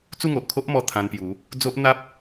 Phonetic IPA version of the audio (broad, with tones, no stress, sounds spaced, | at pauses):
t͡s u˥˧ ŋ o˨ ʔ kʰ o˦ ʔ m ɔ˧ t̪ʰ ã˧ n p j u˨˦ | d͡z o˦ ʔ n̪ a˦ p̚